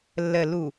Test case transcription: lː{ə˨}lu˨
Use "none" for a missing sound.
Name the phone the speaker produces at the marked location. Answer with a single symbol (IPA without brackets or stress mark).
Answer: ə˨